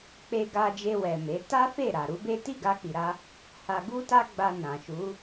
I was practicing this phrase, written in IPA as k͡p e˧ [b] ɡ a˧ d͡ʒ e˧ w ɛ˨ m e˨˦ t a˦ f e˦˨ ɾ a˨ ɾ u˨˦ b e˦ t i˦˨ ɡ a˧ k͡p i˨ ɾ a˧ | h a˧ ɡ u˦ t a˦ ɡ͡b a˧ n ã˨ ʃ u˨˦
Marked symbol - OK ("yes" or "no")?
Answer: no